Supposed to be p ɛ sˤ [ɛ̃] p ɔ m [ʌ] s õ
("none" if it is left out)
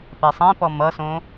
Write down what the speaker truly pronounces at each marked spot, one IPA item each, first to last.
ɛ̃, ʌ

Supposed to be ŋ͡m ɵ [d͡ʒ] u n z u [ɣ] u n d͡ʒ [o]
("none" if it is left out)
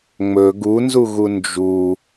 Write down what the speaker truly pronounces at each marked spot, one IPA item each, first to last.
ɡ, ɣ, u

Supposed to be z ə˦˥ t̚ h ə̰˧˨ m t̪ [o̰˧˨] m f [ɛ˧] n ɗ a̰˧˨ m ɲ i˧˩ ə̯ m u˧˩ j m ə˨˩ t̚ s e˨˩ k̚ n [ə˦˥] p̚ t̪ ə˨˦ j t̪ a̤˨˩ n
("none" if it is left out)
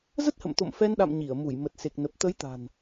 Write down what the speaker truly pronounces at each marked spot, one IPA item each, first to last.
o̰˧˨, ɛ˧, ə˨˩

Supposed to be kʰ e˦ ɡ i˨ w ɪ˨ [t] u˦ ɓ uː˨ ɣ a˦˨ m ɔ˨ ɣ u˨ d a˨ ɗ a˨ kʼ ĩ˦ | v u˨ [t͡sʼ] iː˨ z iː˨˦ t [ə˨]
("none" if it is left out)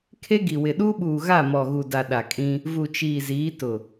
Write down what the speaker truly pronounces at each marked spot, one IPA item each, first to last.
ɗ, t͡ʃ, ʊ˨

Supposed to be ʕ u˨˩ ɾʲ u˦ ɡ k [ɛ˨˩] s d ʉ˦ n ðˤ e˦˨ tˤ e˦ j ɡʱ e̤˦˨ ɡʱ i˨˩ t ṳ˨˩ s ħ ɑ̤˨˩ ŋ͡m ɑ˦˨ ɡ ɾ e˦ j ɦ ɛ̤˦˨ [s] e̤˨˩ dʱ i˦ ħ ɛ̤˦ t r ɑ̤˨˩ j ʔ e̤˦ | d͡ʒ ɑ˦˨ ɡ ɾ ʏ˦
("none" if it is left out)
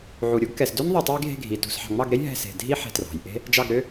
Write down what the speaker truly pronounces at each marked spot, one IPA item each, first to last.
ɛ˨˩, s

